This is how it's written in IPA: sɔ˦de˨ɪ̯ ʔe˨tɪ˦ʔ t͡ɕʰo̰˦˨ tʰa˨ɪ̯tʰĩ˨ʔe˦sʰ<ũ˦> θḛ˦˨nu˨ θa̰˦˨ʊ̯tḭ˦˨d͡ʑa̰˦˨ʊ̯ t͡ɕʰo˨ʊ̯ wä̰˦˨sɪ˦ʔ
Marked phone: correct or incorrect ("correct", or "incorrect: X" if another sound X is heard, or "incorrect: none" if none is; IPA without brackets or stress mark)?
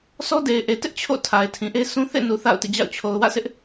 correct